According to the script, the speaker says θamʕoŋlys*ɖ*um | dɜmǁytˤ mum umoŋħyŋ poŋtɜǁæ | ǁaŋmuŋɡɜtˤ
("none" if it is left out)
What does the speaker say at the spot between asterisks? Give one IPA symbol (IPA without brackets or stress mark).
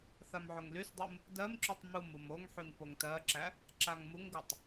dˤ